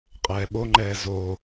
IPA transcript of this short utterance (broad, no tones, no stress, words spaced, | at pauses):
qʼɛːɓoŋ͡ǃɛː zo